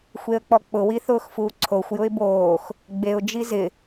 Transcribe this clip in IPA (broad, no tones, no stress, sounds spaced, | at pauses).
xʷ e ə̯ k͡p ɔ k͡p ʊ w i θ ʊː x f uː ǀʰ o xʷ j ʊ ɪ̯ b oː x | ɡ͡b e ʊ̯ d͡ʒ i z ɪ